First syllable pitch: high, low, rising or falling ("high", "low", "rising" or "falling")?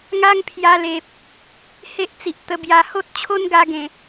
high